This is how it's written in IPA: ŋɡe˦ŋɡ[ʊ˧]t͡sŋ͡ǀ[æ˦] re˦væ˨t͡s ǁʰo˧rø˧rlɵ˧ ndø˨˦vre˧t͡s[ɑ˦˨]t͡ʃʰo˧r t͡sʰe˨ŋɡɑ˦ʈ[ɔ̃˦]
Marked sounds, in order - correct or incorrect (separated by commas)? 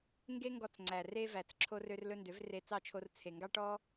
incorrect, incorrect, correct, incorrect